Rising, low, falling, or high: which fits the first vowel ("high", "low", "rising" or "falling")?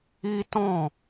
high